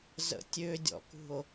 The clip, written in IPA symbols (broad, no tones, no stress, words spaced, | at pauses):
zə̰tʲødʲɔ̰kṳo̯